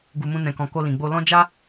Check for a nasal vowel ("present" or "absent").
present